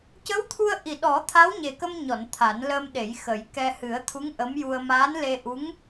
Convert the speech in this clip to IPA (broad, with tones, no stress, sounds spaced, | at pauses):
c ə˧˥ w t̪ʰ u˧ ə̯ ʔ i˨˩ ɗ ɔ˨˩˦ t̪ʰ a˧˥ w ɲ e˨˩ k ə˧ m ɲ ɔ˨˩˨ n t̪ʰ a˨˩˦ n l əː˧ m ɗ e˨˩˦ j x ə˨˩˦ j k ɛ˧ h ɨ˨˩˦ ə̯ t̪ʰ u˧˥ ŋ ʔ ə˧˥ m j u˧ ə̯ m aː˧˥ n l e˧ ʔ u˧˥ ŋ